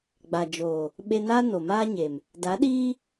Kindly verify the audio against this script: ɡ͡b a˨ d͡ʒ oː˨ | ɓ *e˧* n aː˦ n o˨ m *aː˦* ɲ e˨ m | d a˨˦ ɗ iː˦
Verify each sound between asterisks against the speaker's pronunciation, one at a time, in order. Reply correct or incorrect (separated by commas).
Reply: correct, correct